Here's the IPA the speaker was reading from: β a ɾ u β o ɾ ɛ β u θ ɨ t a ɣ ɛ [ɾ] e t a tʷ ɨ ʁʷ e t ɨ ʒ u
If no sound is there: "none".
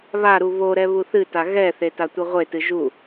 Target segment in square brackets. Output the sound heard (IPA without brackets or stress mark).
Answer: θ